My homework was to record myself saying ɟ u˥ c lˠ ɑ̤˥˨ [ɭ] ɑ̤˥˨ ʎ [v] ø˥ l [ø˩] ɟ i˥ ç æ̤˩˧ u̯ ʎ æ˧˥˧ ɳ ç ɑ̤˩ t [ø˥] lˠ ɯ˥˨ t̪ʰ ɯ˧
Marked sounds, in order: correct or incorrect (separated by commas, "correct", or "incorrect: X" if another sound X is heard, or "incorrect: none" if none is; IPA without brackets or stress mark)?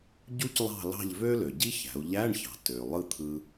incorrect: l, correct, correct, incorrect: ø˩